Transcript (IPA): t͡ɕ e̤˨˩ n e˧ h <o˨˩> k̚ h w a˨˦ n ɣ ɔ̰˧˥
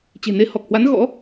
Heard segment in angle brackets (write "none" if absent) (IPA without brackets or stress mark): ɔ˨˩